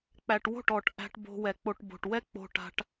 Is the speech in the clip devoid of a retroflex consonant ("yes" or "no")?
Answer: no